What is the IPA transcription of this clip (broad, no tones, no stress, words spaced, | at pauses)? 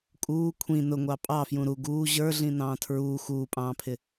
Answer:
kʼuː kʷʰĩ nʊŋʷɑ pʼɑfjũ ɾu ɡuː ʑə˞ɮĩ nɑ̃ːtʰɹuː xuːpʼɑ̃ːpʰɪ